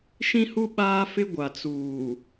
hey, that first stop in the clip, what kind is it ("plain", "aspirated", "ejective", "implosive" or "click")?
implosive